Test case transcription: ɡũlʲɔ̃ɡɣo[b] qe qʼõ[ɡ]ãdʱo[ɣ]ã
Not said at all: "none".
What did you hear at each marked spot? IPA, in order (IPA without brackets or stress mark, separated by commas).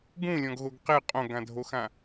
ɡ, ɡ, x